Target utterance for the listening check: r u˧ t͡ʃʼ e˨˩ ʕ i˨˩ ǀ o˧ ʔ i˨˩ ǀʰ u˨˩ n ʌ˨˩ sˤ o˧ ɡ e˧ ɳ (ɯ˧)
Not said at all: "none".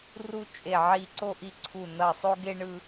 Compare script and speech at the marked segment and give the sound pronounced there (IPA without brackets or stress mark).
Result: ɯ˧